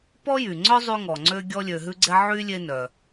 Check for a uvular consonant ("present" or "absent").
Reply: absent